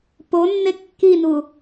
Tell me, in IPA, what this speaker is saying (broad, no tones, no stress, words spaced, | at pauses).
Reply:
ponːe kːinu